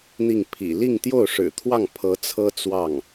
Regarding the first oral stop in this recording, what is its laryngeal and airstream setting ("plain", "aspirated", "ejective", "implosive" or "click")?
aspirated